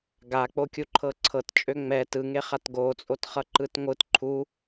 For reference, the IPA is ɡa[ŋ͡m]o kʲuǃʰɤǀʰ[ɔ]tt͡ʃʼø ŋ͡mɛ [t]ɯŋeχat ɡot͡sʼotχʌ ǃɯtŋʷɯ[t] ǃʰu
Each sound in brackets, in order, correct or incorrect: incorrect: k͡p, incorrect: ɤ, correct, correct

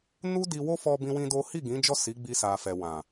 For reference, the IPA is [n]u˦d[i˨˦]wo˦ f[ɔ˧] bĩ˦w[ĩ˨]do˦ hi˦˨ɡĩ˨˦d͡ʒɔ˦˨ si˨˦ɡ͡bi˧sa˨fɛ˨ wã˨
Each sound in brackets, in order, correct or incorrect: correct, incorrect: i˧, correct, incorrect: ĩ˦

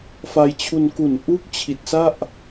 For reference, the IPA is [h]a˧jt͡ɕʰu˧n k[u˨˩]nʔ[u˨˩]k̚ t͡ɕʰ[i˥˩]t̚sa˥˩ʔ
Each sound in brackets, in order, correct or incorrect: incorrect: f, incorrect: u˩˦, incorrect: u˦˥, incorrect: i˨˩

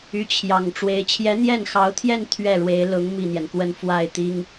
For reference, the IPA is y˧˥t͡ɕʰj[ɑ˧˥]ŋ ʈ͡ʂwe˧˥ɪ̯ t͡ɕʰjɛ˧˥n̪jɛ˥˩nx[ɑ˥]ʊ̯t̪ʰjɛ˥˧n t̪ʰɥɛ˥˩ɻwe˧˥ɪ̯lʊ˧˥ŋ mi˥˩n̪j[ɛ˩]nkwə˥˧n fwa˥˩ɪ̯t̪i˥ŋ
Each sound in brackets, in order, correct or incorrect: incorrect: ɑ˨˩, incorrect: ɑ˧˥, correct

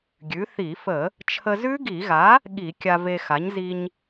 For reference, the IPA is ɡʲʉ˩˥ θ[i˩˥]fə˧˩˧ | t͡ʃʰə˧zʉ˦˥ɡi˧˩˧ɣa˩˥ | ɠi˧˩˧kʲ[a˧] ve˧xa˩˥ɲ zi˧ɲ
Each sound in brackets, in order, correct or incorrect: incorrect: i˧˩˧, correct

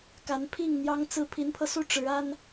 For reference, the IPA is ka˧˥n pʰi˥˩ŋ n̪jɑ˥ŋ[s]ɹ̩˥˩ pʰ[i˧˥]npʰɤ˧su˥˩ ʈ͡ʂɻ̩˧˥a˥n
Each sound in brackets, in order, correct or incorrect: incorrect: t͡s, correct

